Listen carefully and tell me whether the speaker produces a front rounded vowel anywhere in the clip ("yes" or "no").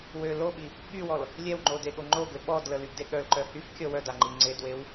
yes